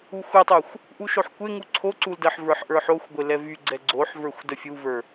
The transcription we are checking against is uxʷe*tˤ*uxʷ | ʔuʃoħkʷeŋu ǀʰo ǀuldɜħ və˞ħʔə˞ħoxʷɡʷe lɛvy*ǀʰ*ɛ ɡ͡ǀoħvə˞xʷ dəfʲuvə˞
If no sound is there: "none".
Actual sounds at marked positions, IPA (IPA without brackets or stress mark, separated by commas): tˤ, ɡ͡ǀ